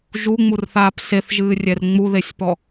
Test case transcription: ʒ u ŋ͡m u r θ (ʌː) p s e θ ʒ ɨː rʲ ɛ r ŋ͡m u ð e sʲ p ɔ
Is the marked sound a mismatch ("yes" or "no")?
yes